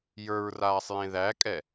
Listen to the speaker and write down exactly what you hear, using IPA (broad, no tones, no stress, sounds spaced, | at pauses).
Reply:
j ə˞ ɹ r aː sˤ j ẽ ð æ kʼ ɛ